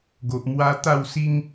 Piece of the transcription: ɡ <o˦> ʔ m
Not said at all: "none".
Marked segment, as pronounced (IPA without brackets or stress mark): o˨